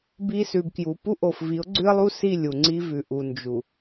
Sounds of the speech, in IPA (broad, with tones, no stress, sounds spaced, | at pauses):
b i˨ s ʉ˨ b k j u˨ p u˦ ʔ o˨ f v i˨˦ ʊ̯ ɡ͡ǀ ʉ˦ ə̯ lˠ u˦ s i˦˨ lʲ u˨ ŋ͡ǀ i˦ v ʉ˨ ʔ u˨ n d͡ʒ u˨